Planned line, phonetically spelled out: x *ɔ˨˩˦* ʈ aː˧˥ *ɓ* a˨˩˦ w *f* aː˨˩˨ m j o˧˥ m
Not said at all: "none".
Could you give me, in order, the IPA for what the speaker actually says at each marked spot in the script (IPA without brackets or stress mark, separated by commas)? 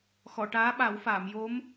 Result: ɔ˨˩˨, ɓ, f